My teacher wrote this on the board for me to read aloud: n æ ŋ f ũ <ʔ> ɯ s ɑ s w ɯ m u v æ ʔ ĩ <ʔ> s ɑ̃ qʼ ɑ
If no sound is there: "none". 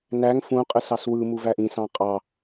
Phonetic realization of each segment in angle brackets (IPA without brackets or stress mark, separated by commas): qʼ, none